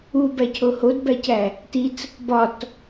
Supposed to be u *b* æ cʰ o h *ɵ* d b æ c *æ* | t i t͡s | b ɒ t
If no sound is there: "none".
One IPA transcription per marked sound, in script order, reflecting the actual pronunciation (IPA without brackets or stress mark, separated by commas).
b, o, æ